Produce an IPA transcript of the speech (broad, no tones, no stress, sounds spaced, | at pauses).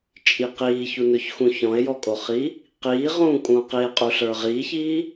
t͡ʃʼ i q iː ç u n ɵ ç x ũ ç ɔ̃ e̯ j ɔ kʼ o χ i | q iː ʁ ũː kʼ ũː q i e̯ qʼ u ɬ ə˞ ʁ iː ç iː